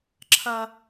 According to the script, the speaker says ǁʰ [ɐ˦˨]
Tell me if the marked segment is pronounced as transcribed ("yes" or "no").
no